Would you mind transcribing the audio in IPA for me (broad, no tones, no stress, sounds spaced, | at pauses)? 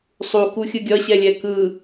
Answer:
sˤ u k u xʲ ɯ ɡʲ ʌ ɕ ɛ lʲ ɛ k ɯ